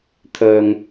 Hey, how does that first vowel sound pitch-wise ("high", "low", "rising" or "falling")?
low